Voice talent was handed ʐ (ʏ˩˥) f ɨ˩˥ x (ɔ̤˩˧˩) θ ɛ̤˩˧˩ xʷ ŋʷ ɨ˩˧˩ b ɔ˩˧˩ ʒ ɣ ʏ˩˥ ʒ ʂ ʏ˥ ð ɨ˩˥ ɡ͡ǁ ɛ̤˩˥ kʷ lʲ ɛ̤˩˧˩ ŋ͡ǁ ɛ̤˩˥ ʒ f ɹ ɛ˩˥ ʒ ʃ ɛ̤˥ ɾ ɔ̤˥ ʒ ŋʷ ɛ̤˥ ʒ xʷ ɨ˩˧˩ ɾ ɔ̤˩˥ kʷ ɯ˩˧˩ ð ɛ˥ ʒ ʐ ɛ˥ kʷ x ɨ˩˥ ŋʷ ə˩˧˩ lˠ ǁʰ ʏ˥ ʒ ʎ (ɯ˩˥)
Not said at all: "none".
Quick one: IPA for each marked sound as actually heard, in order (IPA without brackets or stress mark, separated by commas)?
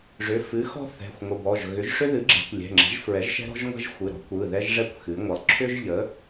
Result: ʏ˩˧˩, ɔ̤˥, ə˩˥